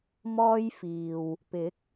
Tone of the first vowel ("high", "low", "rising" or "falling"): high